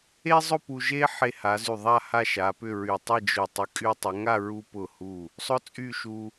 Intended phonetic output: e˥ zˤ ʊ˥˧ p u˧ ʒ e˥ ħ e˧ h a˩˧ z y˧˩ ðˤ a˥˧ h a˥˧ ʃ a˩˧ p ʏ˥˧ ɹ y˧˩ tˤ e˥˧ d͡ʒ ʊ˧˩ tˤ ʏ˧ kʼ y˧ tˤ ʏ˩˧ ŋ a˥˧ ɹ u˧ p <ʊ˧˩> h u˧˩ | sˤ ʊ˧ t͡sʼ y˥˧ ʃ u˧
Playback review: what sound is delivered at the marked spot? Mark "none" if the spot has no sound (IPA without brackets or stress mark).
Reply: ʊ˧˩